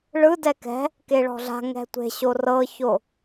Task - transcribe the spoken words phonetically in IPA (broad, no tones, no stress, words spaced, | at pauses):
ɭɯ dɛkɛ̤ | keɭɔ̤ɮa̤ ŋɛ̤tʷe̤ ɕorɤço